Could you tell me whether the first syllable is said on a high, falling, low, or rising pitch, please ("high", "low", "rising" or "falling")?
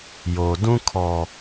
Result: low